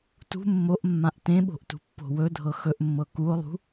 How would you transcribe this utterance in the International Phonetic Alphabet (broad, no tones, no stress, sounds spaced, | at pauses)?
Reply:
t ṳ mː o ʔ mː ã ʔ t ẽ ɓ o̤ ʔ t ṳ pː o̤ w ɵ dʱ ɤ x ɵ ʔ mː ɤ k u o̯ lˠ ṳ